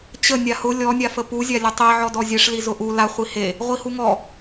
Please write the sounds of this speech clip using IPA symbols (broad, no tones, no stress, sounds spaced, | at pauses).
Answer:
t͡ɕ ə nʲ a h ʊ lʲ ɔ nʲ a f ə p u zʲ a lʲ ʊ tˤ i ʕ ɔ d ɔ zʲ e ʂ l i z ʊ ʔ u l a χʷ i h e | ʁʷ i h u ŋ ɔ